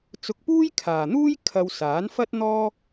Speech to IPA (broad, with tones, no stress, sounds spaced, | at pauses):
t͡s ʊ˧ k̚ p uː˥ j kʰ aː˨ n̪ uː˥ j kʰ ɐ˧ w s aː˨˥ n f ɐ˥ t̚ n̪ ɔː˥